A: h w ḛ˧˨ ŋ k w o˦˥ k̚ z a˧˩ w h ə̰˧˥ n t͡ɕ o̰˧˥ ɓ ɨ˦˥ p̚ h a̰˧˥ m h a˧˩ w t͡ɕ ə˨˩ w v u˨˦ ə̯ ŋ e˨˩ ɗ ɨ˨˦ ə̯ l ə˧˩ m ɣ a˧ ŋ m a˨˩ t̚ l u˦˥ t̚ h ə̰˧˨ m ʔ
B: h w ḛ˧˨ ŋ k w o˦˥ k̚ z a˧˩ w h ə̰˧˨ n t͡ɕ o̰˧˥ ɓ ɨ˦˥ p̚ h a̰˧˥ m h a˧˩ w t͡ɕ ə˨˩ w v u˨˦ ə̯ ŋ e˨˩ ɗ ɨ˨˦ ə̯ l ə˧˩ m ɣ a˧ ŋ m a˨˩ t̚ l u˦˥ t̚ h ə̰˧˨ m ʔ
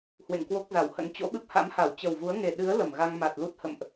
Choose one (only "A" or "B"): A